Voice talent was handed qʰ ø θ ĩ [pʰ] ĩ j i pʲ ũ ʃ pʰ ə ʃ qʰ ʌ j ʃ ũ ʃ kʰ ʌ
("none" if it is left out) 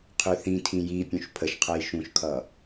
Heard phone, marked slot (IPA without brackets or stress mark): tʰ